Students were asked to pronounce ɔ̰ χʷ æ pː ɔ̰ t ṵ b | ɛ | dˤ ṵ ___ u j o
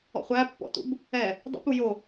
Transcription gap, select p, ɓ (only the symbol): p